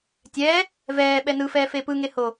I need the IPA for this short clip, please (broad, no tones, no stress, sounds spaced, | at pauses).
tʲ ɛː | v ɛː ɓ ɛ n ɯ f ɛː f e p ɯ ŋ e h o